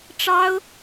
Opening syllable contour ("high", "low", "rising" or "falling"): high